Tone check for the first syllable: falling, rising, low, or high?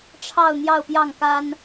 falling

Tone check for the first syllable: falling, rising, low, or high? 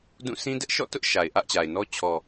falling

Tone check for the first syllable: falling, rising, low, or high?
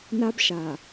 high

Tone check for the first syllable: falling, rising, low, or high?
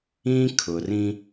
high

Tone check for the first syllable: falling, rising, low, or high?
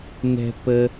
high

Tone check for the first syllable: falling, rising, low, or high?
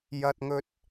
high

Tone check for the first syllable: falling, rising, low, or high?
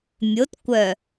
rising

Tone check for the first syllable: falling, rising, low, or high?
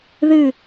falling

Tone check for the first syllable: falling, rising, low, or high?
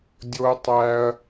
high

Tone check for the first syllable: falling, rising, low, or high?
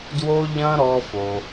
high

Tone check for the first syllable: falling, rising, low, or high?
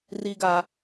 high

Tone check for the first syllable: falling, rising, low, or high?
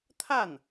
falling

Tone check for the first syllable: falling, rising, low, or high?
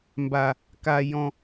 low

